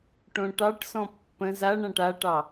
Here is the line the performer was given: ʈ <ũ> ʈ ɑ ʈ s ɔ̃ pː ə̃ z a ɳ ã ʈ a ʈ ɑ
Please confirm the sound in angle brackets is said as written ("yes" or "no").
no